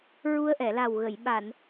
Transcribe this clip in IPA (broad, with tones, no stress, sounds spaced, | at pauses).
ɹ u˧ ə̯ ʔ ɛ˨˩˨ l a˨˩ w ɣ ə˨˩˨ j ɓ a˨˩˨ n